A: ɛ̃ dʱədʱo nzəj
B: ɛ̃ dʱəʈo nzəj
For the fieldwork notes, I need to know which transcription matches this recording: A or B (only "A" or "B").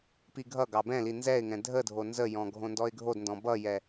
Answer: A